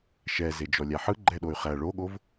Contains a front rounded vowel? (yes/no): yes